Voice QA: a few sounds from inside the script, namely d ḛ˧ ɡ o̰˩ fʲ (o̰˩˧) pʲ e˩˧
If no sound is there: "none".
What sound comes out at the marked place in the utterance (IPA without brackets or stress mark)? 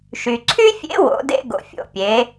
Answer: o̰˩˧